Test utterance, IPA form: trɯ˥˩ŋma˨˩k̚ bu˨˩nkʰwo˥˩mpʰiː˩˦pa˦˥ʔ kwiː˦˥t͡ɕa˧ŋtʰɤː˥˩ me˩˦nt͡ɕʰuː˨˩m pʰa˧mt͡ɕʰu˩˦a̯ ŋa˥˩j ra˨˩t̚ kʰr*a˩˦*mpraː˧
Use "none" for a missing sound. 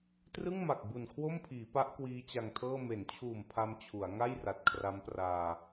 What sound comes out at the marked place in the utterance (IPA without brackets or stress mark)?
a˦˥